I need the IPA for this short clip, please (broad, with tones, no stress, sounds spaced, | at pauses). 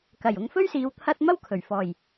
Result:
k ɐ˨˩ j ʊ˨ ŋ f ɵ˥ ɥ s iː˨˧ w t̪ʰ ɐ˥ t̚ m ɐ˥ w kʰ ɵ˨˩ ɥ f ɔː˨˩ j